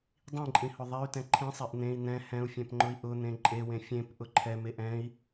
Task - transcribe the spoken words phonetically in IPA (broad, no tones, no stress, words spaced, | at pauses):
dˤĩǃʼĩhʊ ðˤey̯tɛ̃ ǃʰĩsˤeʔ n̪ẽi̯ n̪ɛ̃ hɛ̃u̯fʲɛ̃pŋ͡ǃʊi̯ ʔʊn̪ẽ ǃʼewẽ fʲẽpʔʊ ǃʰɛmeʔ ɛ̃i̯